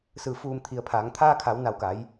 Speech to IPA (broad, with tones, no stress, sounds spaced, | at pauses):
s ɯː˧˩ f uː˧˩ m t̪ʰ i˩˧ ə̯ pʰ aː˩˧ ŋ t̪ʰ aː˧ kʰ a˩˧ w n a˧˩ w k a˩˧ j